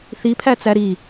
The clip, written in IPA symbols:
θ i pʰ æ t͡s æ ɾ i

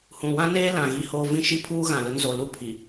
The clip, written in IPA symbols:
h ũ˨ w ã˦ n eː˦ l ã˨ ɣ i˦ h oː˦ v ĩ˦ ʃ i˦ pʰ uː˦ ɣ ã˨ l ʊ˦ n z o˨ l u˦ pʰ i˨

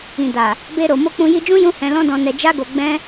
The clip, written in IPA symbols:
ĩ˨ d a˨ | b e˧ ɾ o˨ m o˧ k͡p ũ˧ j i˧ d͡ʒ ũ˦ j ũ˦ h ɛ̃˧ l ɔ̃˦ d ɔ̃˧ n ɛ˧ d͡ʒ a˦ ɡ o˧ ɡ͡b ɛ̃˦

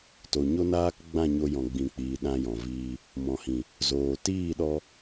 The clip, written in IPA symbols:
t o˨ ɲ o˦ n aː˦ k ɡ͡b ã˦˨ ɲ o˧ j ɔ̃˨ ɡ͡b ĩ˨ k͡p iː˨ ɗ ã˧ j ɔ̃˨ v iː˧ | m ɔ̃˨ h ĩ˨ | z oː˨ t iː˦˨ ɗ ɔ˧

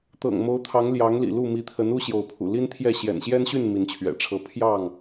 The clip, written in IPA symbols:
t̪ ɤ̰˨˩ ŋ m o˨˦ ʊ̯ t̪ʰ ɑ˨˦ ŋ l j ɑ˨˦ ŋ l ḭ˨˩ l u˥˨ m i˨˦ t̪ʰ ə˨˦ n u˦ ɕ j o˨˦ ʊ̯ pʰ ṵ˨˩ l i˦ n t̪ʰ j ɛ˥˨ ɕ j ɛ̰˨˩ n ɕ j ɛ˦ n ɕ y˥˨ n m i˨˦ n t͡ɕʰ ɥ ɛ̰˨˩ ʈ͡ʂʰ ɤ˨˦ pʰ j ɑ˥˨ ŋ

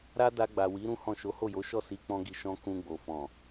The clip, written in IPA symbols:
ɾ a˦ d a˧ ɡ͡b a˨ w i˨˦ ɾ ũ˦ h ɔ̃˦˨ ʃ o˨˦ h o˦˨ j o˨˦ ʃ ɔ˦˨ s i˨˦ k͡p ɔ̃˧ ɡ i˨ ʃ ɔ̃˧ k ũ˧ ɡ͡b o˨ f ɔ̃˨

